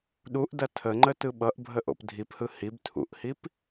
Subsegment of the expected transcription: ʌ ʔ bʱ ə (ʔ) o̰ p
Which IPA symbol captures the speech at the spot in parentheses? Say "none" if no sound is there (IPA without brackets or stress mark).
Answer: ʔ